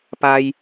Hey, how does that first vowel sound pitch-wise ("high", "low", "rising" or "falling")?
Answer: high